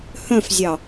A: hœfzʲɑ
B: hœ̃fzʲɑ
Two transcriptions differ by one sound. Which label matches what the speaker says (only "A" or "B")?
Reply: B